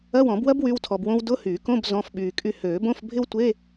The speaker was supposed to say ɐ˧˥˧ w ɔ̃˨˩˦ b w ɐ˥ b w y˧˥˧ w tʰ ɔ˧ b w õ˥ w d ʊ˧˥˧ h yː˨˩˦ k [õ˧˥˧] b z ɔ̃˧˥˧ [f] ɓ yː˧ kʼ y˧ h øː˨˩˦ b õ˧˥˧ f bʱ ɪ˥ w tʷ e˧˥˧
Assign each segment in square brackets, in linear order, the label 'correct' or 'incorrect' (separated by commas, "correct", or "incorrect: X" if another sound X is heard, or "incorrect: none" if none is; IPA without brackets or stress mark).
correct, correct